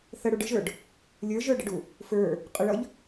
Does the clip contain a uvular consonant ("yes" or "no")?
yes